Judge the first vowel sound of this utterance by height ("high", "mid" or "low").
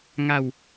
low